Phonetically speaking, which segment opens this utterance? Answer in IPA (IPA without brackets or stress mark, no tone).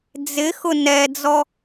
d͡z